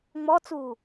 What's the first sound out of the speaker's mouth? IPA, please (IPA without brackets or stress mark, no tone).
ŋ͡m